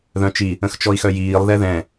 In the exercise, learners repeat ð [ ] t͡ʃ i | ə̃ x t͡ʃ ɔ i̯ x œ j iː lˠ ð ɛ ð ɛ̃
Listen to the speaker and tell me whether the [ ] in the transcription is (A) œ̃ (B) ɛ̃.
A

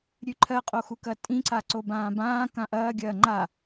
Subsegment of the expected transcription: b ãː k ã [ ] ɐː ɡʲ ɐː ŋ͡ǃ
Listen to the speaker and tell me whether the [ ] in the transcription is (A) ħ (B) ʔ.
B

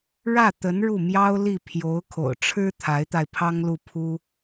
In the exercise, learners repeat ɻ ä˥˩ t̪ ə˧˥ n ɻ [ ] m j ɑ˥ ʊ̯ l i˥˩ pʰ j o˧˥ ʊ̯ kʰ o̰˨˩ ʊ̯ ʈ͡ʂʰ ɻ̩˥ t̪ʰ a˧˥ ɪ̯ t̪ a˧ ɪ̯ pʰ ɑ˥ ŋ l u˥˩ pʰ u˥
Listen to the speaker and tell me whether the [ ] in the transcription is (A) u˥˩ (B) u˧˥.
A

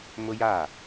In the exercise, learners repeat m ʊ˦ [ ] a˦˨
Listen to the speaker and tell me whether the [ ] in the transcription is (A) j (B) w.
A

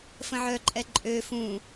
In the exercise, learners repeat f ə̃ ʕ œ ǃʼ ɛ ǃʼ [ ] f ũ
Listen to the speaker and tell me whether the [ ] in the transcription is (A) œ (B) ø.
B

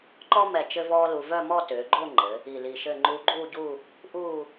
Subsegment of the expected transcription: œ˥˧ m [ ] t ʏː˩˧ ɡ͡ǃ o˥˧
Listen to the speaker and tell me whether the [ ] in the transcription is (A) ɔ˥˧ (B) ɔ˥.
A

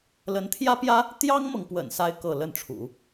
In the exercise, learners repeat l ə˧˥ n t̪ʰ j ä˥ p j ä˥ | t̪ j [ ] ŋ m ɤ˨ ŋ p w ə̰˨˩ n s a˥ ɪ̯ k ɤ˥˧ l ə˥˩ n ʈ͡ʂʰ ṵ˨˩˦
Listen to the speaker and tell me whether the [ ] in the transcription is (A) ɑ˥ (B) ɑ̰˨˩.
A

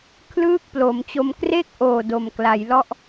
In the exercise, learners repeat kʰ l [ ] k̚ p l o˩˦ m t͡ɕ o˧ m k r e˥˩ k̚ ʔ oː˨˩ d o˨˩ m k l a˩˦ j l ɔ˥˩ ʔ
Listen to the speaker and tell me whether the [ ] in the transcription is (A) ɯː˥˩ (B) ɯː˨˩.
A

